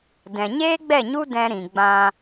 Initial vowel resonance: nasal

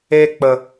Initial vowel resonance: oral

